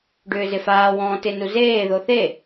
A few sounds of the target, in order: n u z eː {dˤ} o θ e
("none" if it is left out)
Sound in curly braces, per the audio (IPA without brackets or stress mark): ð